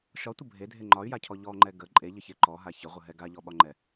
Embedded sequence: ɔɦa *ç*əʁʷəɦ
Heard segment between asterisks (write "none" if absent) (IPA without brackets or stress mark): ç